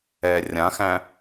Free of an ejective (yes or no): yes